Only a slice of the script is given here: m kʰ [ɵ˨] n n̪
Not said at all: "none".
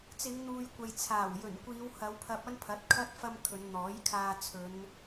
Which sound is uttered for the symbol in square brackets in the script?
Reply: ɵ˨˧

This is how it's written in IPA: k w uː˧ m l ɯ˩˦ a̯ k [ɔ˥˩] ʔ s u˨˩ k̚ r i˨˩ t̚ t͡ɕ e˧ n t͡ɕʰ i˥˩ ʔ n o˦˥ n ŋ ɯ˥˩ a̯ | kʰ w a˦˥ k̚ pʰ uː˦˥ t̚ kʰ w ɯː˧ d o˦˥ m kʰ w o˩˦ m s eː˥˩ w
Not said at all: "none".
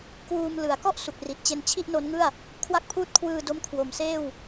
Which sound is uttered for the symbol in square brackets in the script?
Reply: ɔ˥˩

